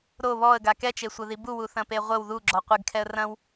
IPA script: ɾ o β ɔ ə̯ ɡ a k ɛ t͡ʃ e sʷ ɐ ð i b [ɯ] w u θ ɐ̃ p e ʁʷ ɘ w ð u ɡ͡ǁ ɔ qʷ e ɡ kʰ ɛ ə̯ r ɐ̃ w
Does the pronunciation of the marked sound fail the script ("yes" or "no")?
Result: yes